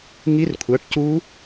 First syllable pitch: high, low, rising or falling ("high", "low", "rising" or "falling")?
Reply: rising